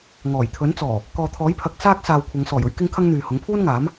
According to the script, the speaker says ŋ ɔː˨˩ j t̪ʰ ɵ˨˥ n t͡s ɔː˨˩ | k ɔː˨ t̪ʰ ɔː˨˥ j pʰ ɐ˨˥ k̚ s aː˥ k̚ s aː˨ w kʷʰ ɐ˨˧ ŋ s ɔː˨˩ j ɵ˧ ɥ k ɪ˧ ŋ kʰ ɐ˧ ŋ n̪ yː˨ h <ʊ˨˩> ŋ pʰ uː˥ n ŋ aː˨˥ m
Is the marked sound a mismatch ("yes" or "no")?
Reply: yes